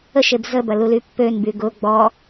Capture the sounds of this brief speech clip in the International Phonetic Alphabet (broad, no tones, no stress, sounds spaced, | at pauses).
ə ʃ e b z ə b ɐ l u l y pː ø n b y ɡ ʊ ɡ͡b ɔ